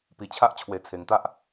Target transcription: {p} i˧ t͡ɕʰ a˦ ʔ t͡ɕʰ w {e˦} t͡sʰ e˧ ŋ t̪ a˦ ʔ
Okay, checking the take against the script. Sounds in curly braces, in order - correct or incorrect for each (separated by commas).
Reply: correct, incorrect